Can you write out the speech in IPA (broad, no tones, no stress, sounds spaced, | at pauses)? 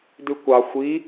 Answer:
d ʉ kʷ ɑ xʷ i